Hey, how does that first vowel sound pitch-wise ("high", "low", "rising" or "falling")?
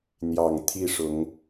low